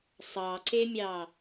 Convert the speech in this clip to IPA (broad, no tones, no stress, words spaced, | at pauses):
sˤɑǀemʲɑ